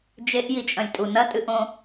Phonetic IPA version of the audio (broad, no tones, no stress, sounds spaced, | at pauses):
d͡ʒ e ʔ j i t͡ʃʼ ɐ̃ lʲ tʼ u n ɐ tʼ ɨ ʔ õ